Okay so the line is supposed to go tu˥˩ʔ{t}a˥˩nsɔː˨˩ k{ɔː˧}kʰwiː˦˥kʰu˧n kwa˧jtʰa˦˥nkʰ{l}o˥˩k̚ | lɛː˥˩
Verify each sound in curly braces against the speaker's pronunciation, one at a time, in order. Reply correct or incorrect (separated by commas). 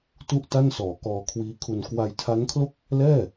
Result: correct, correct, correct